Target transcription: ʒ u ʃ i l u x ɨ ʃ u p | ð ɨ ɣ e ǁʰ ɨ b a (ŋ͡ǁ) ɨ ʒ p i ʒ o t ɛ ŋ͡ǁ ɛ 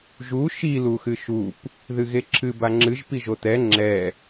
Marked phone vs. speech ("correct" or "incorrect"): correct